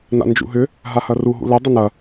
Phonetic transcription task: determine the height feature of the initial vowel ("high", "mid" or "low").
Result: low